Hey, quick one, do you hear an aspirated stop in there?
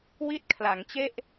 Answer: yes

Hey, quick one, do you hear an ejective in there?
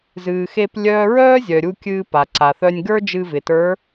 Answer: no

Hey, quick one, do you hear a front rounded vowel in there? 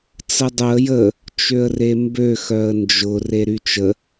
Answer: yes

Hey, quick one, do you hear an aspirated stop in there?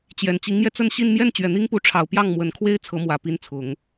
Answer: yes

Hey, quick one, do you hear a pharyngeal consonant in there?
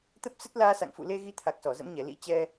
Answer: no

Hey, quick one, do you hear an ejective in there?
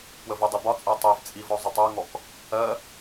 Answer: yes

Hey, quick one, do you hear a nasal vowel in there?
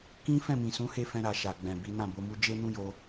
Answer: yes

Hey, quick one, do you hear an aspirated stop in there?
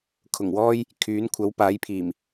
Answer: yes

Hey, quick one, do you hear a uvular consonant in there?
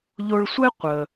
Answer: yes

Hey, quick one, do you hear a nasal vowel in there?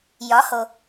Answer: no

